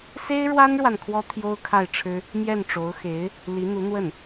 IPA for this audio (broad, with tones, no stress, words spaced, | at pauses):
se˥ɪ̯ɻwa˥nɻwa˨n kʰwɔ˥ t̪ʰjo˥ʊ̯kʰa˥˩ɪ̯ʈ͡ʂʰɻ̩˥ | mjɛ˥˩nʈ͡ʂo˧˥ʊ̯ xe˧˥ɪ̯ | li˧˥n̪u˧˥n̪wə˥˩n